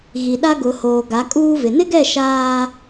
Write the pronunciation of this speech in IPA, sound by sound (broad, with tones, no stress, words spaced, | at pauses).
ɣi˨ɗa˦ ɡʊ˨hoː˨ ɡa˨˦kʼuː˦vɪ˨ nɪ˦ɡɛ˦˨ ʃaː˦